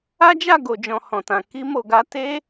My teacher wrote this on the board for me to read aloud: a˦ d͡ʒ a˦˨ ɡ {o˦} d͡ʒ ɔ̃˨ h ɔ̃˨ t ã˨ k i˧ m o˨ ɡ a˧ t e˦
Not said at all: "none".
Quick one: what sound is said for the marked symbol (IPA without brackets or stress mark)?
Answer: o˨